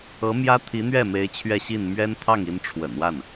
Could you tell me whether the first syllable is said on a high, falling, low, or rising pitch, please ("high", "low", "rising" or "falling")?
rising